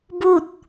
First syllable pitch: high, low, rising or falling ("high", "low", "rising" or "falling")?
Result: falling